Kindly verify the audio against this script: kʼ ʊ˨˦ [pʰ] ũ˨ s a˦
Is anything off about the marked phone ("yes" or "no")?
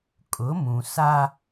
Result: yes